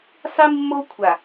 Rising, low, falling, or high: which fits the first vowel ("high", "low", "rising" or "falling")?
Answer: high